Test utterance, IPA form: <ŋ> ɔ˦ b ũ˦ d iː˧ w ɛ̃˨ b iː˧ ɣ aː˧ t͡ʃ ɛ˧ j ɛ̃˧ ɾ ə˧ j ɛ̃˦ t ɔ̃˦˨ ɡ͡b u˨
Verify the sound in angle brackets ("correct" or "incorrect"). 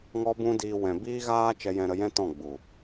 correct